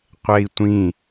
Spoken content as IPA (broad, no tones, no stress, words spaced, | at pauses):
qʷɛi̯tʷĩ